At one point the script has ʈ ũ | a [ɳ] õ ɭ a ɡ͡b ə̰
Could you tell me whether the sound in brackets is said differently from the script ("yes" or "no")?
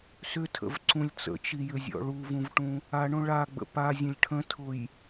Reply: no